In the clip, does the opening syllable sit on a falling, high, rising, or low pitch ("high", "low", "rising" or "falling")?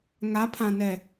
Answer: rising